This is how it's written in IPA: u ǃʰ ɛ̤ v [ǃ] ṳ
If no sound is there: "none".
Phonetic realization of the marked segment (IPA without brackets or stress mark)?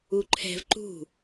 ǃ